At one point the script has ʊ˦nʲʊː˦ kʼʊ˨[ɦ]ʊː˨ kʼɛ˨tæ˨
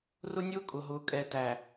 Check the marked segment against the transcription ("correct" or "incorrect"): correct